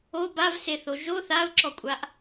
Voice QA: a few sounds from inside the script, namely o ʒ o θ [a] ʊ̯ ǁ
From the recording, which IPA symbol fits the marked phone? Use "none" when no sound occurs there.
a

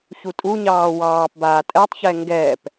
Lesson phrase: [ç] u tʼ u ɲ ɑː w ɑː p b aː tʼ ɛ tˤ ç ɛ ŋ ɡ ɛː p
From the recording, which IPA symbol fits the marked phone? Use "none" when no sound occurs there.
ç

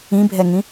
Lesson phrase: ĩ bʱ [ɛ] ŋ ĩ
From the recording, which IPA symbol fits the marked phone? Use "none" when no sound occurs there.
ɛ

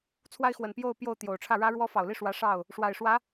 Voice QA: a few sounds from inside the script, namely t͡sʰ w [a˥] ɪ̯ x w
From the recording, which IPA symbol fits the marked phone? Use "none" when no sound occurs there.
a˥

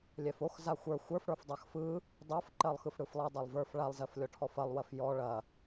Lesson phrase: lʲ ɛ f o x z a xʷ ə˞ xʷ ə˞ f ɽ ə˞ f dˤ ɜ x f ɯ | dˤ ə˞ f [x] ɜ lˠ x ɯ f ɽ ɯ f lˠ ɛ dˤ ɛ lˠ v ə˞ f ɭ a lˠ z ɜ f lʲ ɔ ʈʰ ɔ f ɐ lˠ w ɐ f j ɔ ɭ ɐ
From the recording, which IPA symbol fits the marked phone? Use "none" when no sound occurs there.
ǃ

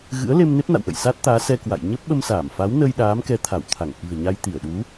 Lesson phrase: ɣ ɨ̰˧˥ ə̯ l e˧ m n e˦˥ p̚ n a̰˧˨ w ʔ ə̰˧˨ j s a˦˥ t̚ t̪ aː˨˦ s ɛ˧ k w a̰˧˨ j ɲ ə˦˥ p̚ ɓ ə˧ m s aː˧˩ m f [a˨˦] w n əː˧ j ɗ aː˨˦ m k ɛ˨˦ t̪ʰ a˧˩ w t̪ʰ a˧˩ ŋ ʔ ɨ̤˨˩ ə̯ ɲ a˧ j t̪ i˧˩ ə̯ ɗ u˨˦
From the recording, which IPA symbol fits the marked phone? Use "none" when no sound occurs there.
a˨˦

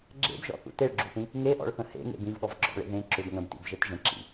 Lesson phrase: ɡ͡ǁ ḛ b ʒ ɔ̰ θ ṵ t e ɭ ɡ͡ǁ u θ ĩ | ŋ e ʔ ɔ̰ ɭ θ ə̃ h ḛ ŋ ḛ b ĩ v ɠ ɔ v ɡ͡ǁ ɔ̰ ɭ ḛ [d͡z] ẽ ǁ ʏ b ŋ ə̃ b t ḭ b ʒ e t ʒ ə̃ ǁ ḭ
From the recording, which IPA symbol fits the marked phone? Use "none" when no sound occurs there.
ð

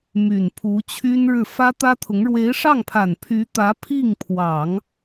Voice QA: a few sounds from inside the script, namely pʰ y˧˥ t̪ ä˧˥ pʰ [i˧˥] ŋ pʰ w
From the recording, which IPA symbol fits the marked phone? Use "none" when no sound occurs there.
i˥˩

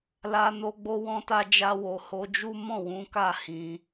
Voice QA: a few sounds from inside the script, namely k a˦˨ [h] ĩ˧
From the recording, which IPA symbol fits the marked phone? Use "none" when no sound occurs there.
h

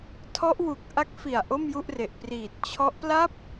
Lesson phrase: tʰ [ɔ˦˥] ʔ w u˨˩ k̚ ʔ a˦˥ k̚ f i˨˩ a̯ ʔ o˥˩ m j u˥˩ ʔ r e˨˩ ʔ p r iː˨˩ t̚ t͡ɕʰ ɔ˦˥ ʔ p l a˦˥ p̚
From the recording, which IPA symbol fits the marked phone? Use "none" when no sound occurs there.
ɔ˦˥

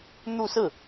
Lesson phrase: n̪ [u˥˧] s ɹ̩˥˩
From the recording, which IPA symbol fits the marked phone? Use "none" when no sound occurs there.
u˥˧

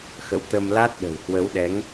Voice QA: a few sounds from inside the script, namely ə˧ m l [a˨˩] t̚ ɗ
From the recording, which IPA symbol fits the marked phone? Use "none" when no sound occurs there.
a˦˥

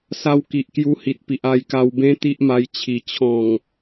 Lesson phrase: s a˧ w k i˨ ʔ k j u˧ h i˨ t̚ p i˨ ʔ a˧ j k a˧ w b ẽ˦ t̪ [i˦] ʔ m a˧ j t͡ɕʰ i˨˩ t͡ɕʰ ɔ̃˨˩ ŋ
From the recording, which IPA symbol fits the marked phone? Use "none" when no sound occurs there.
i˦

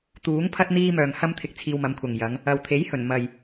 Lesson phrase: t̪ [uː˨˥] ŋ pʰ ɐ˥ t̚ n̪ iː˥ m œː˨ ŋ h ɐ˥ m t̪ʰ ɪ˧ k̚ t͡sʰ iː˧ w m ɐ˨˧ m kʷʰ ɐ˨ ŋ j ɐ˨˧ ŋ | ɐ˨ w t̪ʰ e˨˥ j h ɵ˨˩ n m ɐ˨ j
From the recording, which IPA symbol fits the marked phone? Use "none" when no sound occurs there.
uː˨˥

